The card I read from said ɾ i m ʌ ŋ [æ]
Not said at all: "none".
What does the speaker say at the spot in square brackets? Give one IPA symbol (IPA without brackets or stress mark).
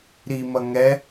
ɛ